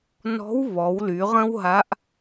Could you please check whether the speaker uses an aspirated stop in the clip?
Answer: no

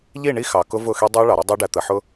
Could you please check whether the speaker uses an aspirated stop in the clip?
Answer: no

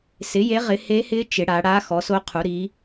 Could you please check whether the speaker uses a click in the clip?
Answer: no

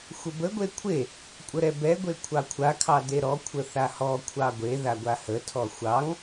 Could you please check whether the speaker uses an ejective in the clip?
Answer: yes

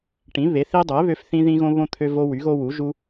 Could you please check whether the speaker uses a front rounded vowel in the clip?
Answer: yes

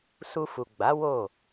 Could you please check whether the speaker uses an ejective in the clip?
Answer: no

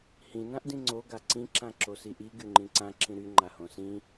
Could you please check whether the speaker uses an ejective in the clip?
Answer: no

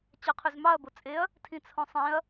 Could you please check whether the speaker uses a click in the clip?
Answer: no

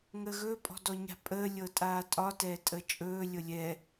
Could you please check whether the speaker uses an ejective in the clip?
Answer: yes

